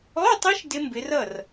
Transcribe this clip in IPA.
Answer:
ɔ˧˥˧ tˤ ɪ˦˥ ʃ d ɪ˦˥ m b ɪ˨˦ r ʌ˥˩ r

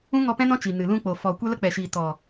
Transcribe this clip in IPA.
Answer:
ũ˦ ŋ ɔ˧ p ɛ̃˦ n ɔ̃˦ t͡ʃ i˨ n ɨ˨ l ũ˧ k͡p o˨ f ɔ˨ kʷ ɛ˦ l ə˦ k͡p ɛ˨ ʃ iː˨ t ɔ˨

